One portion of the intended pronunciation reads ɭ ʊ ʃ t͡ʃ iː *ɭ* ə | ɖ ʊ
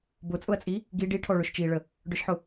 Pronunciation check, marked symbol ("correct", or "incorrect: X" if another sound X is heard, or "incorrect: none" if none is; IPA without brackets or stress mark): correct